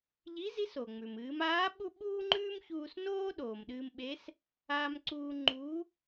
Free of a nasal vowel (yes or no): yes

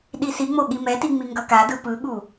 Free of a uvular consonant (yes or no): yes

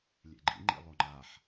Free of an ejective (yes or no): yes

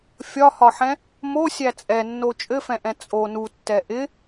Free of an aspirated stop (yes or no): yes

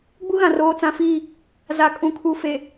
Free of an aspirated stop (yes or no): no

